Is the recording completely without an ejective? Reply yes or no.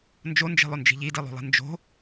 yes